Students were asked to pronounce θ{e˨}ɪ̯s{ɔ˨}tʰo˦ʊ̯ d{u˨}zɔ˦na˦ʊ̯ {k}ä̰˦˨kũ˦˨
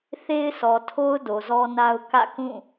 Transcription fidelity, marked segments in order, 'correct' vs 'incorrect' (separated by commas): incorrect, correct, incorrect, correct